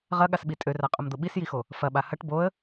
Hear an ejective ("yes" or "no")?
yes